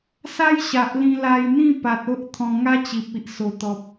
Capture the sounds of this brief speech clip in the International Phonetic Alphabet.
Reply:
s a˦ j ɕ a˨ ʔ l ĩ˧ l a˧ j n̪ ĩ˥˧ p a˨ t̚ o˦ ʔ t̪ʰ ɔ̃˧ ŋ a˦ t͡ɕ i˨ p̚ i˨ ʔ s o˨˩ t̪ ɔ˨ p̚

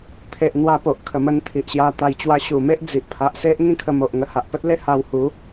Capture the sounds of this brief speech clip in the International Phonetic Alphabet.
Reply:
t̪ʰ e˨ ʔ n̪ w a˧ p o˨ ʔ kʰ ə˨˩ m ə˧ n t̪ʰ i˨ ʔ ɕ j a˧ t̪ a˧ j t͡ɕ w a˧ ɕ u˨˩ m e˦ ʔ d͡z i˨ ʔ pʰ a˨ ʔ s e˦ ʔ ŋ ĩ˥˧ kʰ ə˧ m o˨ ʔ ŋ ə˧ h a˨ ʔ p ə˦ t̚ l e˦ h a˧ w h u˨˦

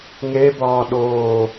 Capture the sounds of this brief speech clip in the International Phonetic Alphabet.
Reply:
ŋ e b ɒː ɗ oː

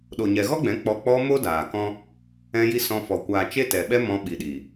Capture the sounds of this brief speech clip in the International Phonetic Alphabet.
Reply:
ɗ o˨ ɲ ɛ˨ ɣ ɔ˦ ɡ͡b ɛ̃˨˦ k͡p ɔ˧ k͡p ɔ˧ m o˦ d aː˨ k ɔ̃˦ | ɛ̃˧ j i˧ s ɔ̃˧ f ɔ˨ kʷ aː˨ t͡ʃ e˦ t ɛ˨ ɓ ɛ˦ m ɔ̃˧ ɓ i˨ ɗ i˨

